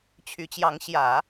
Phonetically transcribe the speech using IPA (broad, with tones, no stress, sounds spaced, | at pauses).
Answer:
t͡ɕʰ y˧˥ t͡ɕ j ɑ˧˥ ŋ ɕ j ä˨˩˦